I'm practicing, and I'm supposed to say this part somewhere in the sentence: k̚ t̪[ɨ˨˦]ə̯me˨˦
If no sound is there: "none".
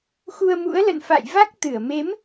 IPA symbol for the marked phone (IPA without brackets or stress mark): ɨ˧˩